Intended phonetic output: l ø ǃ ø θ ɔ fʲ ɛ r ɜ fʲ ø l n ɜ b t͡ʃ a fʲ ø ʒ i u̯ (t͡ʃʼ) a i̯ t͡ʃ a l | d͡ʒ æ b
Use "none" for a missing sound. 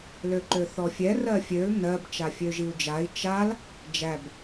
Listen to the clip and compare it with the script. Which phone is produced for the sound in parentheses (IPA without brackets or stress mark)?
d͡ʒ